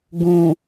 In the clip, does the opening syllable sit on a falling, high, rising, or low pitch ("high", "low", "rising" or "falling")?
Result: low